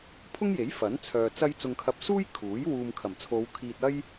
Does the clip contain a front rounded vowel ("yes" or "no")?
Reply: yes